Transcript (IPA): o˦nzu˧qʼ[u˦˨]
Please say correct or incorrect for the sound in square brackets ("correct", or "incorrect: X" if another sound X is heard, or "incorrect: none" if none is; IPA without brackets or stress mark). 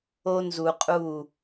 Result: correct